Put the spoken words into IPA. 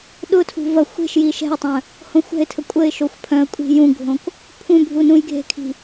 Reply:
ɗ ʊ tʰ ṳ v ɐ xʷ e̤ ʃ j i ʃ ɛ̤ ɪ̯ tˤ œ̃ | h õ xʷ ɛ̤ ɪ̯ tʰ ə kʷʼ ə ɪ̯ ʃ o xʷ pʰ œ̃ ə̯ kʷʼ i̤ j ũ ɡʱ õ k | pʰ ũ bʱ u n ũ j ɡʱ e̤ kʰ i̤

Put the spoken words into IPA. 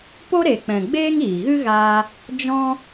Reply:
p o˦ ɾ e˨ k͡p ɛ̃˨ ɡ͡b eː˦ ŋ iː˨ ɣ ɨ˦ ɣ aː˧ | d͡ʒ ɔ̃˦

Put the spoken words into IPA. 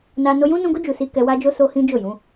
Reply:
n a˧ n o˧ j ũ˦ n ũ˧ ɡ o˦ d͡ʒ u˧ s i˦ k ɛ˧ w a˦ d͡ʒ o˦ s o˦ h ĩ˦ d͡ʒ o˦˨ j ũ˨˦

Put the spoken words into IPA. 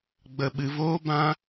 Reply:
ɡ͡b ə˧ ɓ ɨ˧ v oː˦ b ã˦

